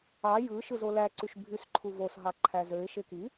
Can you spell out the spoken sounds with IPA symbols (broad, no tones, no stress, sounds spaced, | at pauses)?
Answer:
ɑ j ɯ ʃ ɯ z o l æ ǀ y ʃ bʱ y s ǃʰ u v o s ɦ ɑ ǃʰ æ z ø ɪ̯ ʃ e k i